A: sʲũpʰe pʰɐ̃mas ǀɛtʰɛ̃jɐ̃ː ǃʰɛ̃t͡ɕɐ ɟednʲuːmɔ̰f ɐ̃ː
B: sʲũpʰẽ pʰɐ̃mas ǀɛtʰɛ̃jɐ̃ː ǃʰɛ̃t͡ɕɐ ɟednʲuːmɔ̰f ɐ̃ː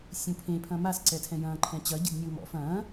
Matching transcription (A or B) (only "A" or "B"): B